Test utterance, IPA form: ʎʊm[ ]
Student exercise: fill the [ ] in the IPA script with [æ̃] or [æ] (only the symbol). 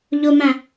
æ̃